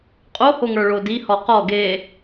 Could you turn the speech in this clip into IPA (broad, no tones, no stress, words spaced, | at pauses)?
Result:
qʼohoŋə˞ ɭodihɔ qɔ ɡe